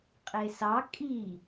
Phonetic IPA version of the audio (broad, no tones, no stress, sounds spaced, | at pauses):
qʼ e s ɑ kʼ i